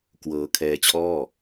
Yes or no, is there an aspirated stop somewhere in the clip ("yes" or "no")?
yes